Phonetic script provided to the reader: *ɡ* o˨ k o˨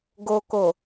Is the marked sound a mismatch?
no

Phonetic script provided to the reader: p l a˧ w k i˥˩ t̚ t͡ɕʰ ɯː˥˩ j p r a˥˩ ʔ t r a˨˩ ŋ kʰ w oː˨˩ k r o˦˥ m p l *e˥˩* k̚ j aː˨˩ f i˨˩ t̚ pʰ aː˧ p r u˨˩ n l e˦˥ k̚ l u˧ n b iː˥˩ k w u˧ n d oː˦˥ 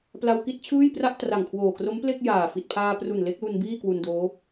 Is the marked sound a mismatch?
no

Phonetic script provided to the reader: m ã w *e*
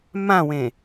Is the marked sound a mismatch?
yes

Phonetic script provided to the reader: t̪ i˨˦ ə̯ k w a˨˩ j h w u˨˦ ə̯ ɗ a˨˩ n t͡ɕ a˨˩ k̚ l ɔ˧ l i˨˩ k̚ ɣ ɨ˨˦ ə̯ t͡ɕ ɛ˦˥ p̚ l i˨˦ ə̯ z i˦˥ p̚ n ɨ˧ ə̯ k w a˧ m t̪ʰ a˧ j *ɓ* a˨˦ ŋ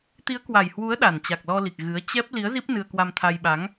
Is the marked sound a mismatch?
no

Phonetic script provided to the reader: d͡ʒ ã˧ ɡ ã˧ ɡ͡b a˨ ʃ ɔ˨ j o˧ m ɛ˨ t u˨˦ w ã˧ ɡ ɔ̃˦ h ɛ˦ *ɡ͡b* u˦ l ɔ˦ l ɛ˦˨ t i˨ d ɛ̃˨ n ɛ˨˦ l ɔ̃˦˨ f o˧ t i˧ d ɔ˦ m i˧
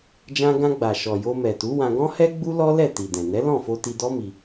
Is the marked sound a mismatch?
no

